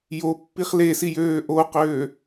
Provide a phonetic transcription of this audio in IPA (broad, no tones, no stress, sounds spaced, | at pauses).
j o pː i χ l e s i j øː ʔ o q øː